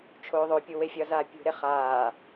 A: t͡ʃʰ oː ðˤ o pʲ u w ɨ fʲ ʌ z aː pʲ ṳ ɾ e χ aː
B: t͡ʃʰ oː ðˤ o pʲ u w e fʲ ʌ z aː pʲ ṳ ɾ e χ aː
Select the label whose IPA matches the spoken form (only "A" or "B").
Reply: B